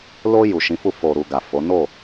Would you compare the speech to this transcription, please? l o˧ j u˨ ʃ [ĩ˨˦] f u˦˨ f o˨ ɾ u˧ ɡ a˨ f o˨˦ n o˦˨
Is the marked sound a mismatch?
no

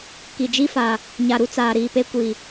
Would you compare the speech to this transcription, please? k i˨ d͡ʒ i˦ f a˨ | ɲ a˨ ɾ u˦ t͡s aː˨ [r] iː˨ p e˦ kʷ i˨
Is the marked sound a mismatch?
yes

